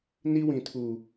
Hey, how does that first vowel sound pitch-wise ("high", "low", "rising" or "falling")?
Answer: high